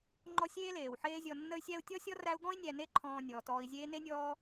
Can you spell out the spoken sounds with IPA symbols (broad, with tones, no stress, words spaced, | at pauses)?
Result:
ŋ͡ǃɔ˦sʲeː˥leː˩wħeː˦ zʲɔ˨nːə˦y̯ sʲæ˦u̯tʲɔ˥sʲɔ˥ræ˦u̯ ɡɔ̃˥i̯nʲæ˨ne˦ ǃʰɔ̃ː˨ nʲɔː˩tɔː˨i̯zʲeː˦ ne˥nʲɔː˦